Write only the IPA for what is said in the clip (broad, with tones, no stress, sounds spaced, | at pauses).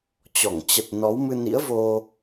t͡ɕ ɔ˧˩ ŋ t͡ɕ ə˨˩ t̚ n ɔ˨˦ w m ɨ˧ n ḭ˧˥ ə̯ v o˧